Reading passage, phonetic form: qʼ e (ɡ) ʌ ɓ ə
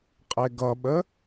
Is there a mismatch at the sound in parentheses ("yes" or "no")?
no